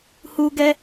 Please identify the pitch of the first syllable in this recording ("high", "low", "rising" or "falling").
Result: high